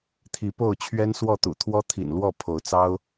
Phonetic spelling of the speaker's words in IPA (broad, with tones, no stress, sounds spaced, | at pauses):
t̪ʰ i˨˦ p o˥˨ ʊ̯ t͡ɕʰ ɥ ɛ˦ n s w ɔ˥˨ t̪ ṵ˨˩ t̪ʰ w ɔ˦ t̪ʰ ḭ˨˩ n l w ɔ˥˨ pʰ o˨˦ ʊ̯ t͡s ɑ˦ ʊ̯